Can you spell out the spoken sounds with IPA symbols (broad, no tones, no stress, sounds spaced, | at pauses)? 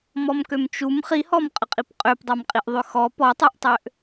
m ɔ m k ø m t͡ʃ u m χ i h ɔ m qʼ ə qʼ i p qʼ ø p dˤ a m qʼ i ʔ ðˤ ø x ɔ p ɔ tˤ u ʔ tˤ ø ʔ